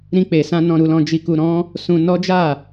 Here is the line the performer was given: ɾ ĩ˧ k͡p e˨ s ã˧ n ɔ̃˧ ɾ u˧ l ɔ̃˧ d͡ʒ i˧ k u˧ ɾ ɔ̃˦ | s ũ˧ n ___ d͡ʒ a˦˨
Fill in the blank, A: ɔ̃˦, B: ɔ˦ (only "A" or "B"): B